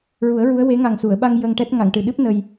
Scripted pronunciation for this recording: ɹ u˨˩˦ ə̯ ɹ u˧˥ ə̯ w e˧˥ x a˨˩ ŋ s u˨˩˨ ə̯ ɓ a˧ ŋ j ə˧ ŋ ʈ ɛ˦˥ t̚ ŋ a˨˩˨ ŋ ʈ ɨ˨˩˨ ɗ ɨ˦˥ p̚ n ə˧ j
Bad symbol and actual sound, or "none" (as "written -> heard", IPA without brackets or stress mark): x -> ŋ